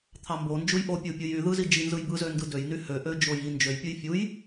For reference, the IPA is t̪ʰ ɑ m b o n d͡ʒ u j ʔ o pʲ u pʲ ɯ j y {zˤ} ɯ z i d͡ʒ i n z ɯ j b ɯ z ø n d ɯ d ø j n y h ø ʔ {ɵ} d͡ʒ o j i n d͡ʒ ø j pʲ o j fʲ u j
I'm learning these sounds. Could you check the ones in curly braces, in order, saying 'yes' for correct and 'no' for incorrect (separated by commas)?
no, no